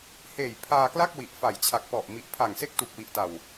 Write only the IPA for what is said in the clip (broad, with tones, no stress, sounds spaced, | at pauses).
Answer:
h eː˨˩ j pʰ aː˧ k l a˥˩ k̚ w i˨˩ ʔ f a˨˩ j t͡ɕʰ a˨˩ k̚ p ɔ˨˩ ʔ m i˨˩ ʔ pʰ a˨˩ ŋ s e˥˩ k̚ t u˨˩ k̚ w i˨˩ ʔ t a˨˩ w